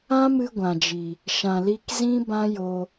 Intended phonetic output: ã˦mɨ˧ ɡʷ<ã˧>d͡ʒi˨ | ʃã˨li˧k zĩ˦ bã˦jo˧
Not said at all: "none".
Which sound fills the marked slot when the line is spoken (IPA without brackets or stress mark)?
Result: ã˨